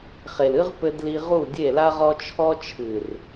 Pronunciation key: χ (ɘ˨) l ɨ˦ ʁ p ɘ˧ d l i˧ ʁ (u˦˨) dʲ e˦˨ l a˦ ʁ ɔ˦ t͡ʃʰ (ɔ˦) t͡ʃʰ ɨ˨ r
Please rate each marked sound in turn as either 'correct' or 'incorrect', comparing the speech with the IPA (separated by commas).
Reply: incorrect, correct, correct